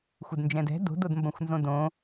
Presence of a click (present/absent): absent